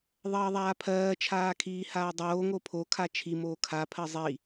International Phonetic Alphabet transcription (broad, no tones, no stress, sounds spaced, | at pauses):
ðˤ ɜː ðˤ aː pʰ ɜː t͡ʃʰ aː kʰ iː h aː dˤ oː ŋ o pʰ o kʰ a t͡ʃʰ i m oː kʰ a pʰ ɜ zˤ i